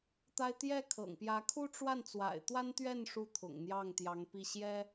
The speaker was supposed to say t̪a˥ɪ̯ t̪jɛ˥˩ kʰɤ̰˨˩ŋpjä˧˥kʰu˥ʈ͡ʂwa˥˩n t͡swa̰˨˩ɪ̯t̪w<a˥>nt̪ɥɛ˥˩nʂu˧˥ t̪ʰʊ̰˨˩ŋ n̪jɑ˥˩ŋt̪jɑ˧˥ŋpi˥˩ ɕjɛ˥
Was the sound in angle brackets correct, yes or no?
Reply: yes